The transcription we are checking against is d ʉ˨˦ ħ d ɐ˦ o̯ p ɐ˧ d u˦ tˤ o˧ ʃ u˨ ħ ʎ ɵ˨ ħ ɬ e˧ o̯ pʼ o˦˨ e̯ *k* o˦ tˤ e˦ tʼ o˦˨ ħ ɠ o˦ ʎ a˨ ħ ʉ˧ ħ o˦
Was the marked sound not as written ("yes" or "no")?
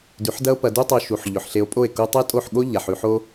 no